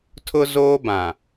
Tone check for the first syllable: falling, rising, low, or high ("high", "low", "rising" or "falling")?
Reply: high